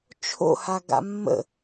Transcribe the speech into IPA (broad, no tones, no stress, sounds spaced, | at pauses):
t͡ʃʰ o̰ h a ɡ a̰ mː ə̰